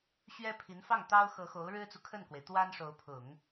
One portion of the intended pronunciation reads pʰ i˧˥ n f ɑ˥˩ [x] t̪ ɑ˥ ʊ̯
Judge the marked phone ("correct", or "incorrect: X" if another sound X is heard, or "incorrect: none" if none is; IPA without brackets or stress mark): incorrect: ŋ